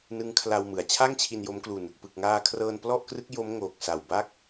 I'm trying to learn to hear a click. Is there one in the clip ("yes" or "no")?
no